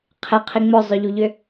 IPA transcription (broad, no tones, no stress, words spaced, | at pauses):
qʰeqʰi ŋ͡mʊzˤʏʎuʎʏ